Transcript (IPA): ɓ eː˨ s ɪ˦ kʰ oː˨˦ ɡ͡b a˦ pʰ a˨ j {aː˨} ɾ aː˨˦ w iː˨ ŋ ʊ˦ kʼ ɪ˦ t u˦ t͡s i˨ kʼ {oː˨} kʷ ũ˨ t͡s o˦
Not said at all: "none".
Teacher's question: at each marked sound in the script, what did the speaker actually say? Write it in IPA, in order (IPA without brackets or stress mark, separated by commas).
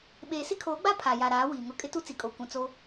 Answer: a˨, o˨